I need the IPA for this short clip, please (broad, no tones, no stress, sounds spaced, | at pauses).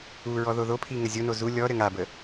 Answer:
u ɹ ɔ ð o ð o pʰ i ŋ ə zʲ o n o z u lʲ ɔ ɾ ɘ ŋ a b ə